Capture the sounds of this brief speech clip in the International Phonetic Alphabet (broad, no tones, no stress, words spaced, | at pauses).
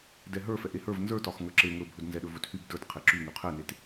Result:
dɛɦə˞ fɛʔehə˞v nzə˞tɒx ŋə˞ǁe ŋɵbʱɵd nzɛɗɵvɵthyb də˞t qʰeǁy ŋyqʰɛnet